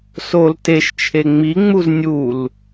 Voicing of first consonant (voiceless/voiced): voiceless